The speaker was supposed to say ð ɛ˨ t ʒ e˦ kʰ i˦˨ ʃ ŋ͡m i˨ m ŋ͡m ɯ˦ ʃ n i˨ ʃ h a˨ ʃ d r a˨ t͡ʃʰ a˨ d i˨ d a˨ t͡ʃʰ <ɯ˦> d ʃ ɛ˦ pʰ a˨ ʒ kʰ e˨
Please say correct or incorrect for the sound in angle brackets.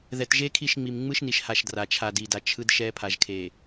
correct